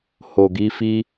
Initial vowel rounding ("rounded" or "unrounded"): rounded